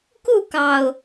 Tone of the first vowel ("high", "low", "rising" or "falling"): falling